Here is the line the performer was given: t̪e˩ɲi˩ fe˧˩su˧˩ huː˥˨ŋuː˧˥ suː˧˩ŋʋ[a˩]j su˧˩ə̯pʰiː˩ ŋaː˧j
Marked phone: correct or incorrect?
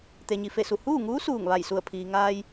incorrect